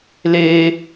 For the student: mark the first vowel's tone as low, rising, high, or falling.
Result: high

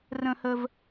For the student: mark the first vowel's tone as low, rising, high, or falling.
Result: high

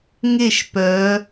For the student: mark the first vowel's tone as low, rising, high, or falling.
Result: falling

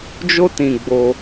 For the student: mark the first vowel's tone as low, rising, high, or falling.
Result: high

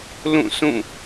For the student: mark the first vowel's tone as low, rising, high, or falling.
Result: falling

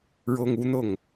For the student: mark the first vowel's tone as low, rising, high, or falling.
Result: high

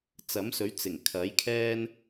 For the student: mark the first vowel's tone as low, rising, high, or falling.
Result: rising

